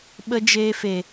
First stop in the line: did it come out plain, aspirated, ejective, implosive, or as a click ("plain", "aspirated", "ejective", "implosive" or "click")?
implosive